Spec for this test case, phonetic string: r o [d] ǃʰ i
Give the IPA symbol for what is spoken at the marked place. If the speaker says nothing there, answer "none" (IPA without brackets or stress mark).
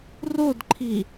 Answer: d